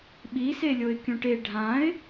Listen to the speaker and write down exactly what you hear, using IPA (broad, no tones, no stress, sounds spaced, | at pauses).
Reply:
ɓ i s e lʲ o ɪ̯ kʲ ũ ʈ e ɖʱ ã ɪ̯